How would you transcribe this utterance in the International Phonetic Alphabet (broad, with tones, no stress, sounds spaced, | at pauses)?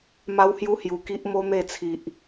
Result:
m a˦ w h j u˦ h j u˨˩ k i˦ ʔ m o˦ n̪ e˥˧ t͡sʰ i˨ ʔ